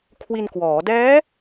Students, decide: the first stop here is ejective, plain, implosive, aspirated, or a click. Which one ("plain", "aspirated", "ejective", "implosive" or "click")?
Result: aspirated